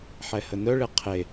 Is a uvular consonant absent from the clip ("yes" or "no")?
no